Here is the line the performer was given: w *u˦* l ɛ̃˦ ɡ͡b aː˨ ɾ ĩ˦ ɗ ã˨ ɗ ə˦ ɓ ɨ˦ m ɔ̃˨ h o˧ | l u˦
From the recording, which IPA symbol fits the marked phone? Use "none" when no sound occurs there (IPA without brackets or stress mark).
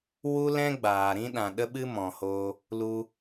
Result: u˦